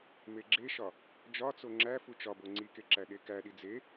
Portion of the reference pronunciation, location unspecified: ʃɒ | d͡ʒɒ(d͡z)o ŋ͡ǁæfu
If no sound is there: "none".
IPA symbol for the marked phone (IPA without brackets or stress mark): t͡s